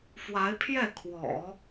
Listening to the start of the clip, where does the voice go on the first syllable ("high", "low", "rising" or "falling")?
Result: rising